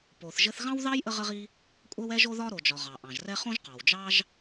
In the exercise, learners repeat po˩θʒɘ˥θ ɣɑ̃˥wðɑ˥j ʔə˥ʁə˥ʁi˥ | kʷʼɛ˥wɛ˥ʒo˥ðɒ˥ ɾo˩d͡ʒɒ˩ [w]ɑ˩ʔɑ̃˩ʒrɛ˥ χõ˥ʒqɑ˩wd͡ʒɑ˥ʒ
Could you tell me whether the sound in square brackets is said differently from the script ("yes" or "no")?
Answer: yes